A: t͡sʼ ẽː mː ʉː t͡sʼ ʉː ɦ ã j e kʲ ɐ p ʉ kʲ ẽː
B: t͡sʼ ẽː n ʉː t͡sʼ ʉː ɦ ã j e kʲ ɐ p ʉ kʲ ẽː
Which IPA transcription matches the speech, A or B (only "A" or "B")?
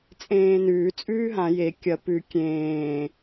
B